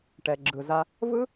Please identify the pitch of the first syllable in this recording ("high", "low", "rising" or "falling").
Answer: low